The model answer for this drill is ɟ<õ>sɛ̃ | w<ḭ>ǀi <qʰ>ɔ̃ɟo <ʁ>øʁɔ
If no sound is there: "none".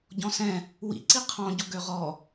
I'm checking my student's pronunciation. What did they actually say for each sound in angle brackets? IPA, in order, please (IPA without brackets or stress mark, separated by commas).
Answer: ɔ̃, ḭ, qʰ, ɡ